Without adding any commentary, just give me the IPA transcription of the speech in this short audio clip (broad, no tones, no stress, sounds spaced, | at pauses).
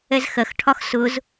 ɛ z x ɜ x ʈʰ ɒ x s ʊ z